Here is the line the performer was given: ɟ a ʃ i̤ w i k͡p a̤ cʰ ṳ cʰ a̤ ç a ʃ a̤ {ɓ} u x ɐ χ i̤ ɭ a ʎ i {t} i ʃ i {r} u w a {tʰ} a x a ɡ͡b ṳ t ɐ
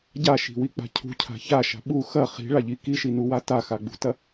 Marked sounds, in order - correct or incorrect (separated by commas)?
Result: correct, incorrect, incorrect, incorrect